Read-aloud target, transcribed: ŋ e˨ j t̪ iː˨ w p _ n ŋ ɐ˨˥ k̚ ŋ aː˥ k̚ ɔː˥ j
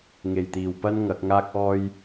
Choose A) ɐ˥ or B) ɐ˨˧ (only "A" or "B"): A